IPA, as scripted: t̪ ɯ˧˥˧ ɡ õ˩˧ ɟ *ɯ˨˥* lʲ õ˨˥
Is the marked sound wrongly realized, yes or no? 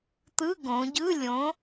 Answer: yes